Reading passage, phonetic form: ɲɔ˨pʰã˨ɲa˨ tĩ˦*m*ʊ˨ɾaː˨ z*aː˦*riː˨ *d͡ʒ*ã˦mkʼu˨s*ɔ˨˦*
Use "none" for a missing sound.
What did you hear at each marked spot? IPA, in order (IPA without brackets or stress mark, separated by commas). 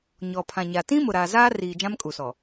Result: m, aː˦, d͡ʒ, ɔ˨